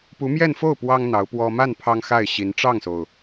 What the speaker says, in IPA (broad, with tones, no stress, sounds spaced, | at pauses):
p u˧˥ m j ɛ˥˧ n f o˥˩ ʊ̯ p w ɑ˥ ŋ n̪ ɑ˧˥ ʊ̯ p w ɔ˥ m a˥˩ n pʰ ɑ˥ ŋ x a˥˩ ɪ̯ ɕ i˧˥ n ʈ͡ʂ ɑ˥˩ ŋ s o˩ ʊ̯